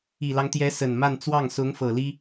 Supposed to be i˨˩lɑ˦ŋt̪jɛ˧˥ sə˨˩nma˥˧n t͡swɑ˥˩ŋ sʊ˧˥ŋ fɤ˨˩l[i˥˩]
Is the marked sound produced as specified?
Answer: no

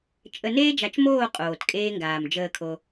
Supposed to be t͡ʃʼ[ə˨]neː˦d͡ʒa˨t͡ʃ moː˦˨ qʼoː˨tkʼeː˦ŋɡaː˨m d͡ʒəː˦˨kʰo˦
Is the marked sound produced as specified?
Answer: yes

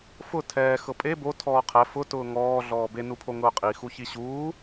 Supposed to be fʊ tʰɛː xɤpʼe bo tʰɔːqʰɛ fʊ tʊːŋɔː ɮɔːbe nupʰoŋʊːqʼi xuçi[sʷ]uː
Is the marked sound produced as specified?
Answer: no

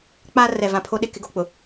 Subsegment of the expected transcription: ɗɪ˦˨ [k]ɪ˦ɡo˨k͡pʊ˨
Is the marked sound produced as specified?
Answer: yes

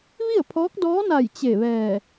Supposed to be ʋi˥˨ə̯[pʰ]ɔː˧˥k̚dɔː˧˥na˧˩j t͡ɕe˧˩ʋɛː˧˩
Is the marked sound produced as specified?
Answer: yes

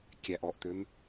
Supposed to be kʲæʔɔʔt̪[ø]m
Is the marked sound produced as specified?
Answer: yes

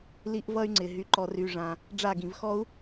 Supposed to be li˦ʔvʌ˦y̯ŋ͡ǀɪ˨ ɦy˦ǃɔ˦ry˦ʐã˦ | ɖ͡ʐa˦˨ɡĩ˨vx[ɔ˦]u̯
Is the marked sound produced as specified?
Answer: yes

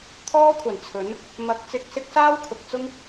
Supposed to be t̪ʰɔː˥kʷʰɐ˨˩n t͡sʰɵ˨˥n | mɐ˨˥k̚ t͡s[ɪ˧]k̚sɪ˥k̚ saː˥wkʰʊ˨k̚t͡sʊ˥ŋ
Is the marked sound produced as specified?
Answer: yes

